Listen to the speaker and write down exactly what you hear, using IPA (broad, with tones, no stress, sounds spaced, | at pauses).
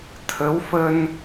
t̪ʰ ə˨˦ w f ə˧ n